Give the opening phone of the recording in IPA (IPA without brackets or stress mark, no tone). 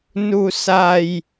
n